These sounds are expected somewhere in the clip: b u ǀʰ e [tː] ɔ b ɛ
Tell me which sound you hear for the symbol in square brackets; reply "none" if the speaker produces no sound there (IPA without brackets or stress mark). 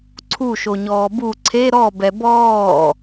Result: ɾ